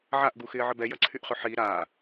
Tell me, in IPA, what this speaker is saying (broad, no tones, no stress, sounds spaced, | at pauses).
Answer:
ʕ a ʔ ɡ u x ɪː ʕ ə b ɛ j ɐ ǀʰ y ʔ χ ʏ ħ i ɾ aː